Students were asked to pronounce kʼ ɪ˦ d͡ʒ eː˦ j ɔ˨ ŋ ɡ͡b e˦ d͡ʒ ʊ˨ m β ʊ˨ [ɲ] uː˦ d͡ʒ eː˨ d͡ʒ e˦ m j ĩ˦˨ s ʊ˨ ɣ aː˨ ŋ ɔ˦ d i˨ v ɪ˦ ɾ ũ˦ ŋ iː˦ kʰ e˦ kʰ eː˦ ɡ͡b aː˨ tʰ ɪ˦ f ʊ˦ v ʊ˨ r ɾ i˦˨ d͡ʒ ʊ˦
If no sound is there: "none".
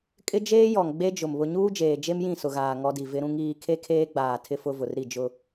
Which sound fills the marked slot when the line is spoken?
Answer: ɲ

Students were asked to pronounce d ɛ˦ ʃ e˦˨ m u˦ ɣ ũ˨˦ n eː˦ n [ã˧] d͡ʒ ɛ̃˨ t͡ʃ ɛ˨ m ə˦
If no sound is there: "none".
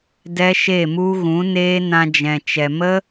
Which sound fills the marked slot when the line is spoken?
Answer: ã˧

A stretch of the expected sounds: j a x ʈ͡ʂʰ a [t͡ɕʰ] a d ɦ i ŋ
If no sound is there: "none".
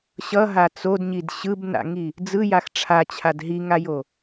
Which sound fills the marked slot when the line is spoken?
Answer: t͡ɕʰ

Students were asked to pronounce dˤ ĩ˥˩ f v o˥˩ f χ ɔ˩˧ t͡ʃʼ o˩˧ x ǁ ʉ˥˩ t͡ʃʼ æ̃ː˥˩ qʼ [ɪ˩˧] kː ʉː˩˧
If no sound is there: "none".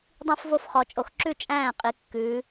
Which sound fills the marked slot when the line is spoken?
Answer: i˩˧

